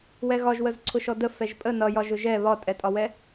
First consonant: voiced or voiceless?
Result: voiced